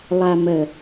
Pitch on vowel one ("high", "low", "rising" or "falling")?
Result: low